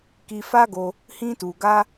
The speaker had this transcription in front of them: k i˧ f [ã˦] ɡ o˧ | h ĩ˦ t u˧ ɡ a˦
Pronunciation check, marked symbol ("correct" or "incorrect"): incorrect